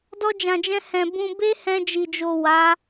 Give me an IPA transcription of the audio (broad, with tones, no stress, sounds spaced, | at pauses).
d ɔ˧ d͡ʒ ã˨ d͡ʒ ɛ̃˧ h ɛ̃˨ b ũ˧ b e˦ h ɛ̃˧ d͡ʒ i˨ d͡ʒ o˨ w a˨˦